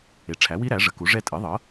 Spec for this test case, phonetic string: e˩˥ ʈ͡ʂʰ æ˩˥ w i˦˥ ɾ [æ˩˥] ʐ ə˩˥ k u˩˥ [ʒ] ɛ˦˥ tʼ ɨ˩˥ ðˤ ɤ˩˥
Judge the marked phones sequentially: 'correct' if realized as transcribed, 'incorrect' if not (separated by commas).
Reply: correct, incorrect